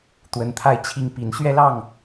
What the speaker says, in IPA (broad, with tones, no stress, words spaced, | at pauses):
t̪wə˨˦nt̪ʰa˥˨ɪ̯t͡ɕʰi˦ŋpi˨˦n ɕɥɛ˦lɑ˥˨ŋ